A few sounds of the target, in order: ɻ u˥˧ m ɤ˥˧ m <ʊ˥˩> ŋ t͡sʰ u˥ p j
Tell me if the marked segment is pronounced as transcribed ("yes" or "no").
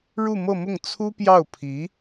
yes